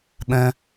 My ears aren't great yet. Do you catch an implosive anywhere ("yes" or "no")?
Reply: yes